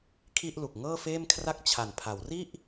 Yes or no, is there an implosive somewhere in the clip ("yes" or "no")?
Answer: no